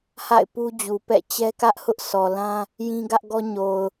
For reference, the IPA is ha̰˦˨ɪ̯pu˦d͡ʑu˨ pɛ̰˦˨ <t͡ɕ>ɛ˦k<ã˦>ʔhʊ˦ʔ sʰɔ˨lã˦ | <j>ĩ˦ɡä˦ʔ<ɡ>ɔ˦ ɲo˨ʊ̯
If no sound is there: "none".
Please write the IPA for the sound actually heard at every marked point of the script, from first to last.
t͡ɕ, ä˦, j, ɡ

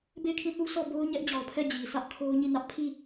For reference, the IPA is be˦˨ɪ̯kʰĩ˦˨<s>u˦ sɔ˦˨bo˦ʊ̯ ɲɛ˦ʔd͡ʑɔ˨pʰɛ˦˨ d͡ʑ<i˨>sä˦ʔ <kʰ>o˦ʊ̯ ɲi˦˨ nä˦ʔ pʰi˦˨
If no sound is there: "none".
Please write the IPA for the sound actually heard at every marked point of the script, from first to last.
θ, i˨, kʰ

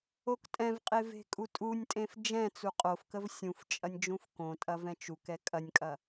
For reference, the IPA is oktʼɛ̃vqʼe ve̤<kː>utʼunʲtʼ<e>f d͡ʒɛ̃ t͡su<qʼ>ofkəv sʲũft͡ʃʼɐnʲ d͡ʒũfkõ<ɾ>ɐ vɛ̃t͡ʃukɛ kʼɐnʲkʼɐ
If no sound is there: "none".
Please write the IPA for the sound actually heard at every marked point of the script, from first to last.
kʼ, ẽ, qʼ, tʼ

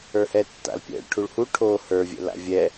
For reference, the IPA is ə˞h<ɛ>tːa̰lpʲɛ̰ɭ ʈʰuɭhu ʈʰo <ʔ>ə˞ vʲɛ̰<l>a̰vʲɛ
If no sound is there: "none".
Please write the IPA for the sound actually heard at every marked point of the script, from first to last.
ɛ, h, l

